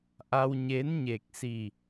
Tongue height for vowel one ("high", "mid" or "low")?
low